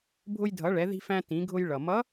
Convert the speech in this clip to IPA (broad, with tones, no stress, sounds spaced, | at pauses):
bʱ ʊ˧ j dʱ ʌ˩˧ ɭ ɛ˩˧ ð i̤˧ f æ̃˧ t ĩ˩˧ ɡʱ ʊ˧ j ɭ ʌ˩ m ʌ˧˥